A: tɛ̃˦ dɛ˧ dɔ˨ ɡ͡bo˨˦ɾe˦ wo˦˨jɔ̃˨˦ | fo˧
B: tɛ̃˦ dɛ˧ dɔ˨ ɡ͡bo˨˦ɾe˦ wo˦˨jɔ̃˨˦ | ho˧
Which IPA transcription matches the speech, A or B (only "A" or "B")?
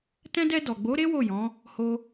B